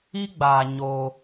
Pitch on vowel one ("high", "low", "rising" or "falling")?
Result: high